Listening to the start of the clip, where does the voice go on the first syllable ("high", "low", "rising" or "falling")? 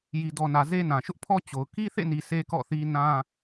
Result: low